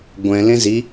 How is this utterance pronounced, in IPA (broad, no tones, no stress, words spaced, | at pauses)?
ɡʷɛ̃ lẽzi